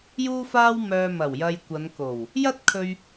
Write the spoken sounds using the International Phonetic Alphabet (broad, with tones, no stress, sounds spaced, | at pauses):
j uː˧ f aː˧ w m œː˧ m ɐ˨˩ w j ɐ˧ j kʷ ɐ˨˧ n k o˨˩ w | j ɐ˥ t̚ kʰ ɵ˧ ɥ